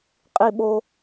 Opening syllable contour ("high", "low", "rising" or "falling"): high